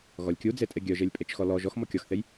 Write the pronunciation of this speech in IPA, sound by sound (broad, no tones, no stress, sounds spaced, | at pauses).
ɣ ɔ lʲ kʲ u d͡z e tʼ e ɡʲ œ ʒ e lʲ pʼ e t͡ʃ x ɔ l ɔ ʒ ɔ x m ɔ kʲ ɔ x θ e j